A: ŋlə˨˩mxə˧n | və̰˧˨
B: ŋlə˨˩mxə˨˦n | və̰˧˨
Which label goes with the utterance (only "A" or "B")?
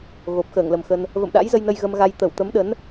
A